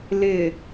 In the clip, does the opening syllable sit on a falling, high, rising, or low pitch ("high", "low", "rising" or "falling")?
low